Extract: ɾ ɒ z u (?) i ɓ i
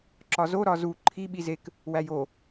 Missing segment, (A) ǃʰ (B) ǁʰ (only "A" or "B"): A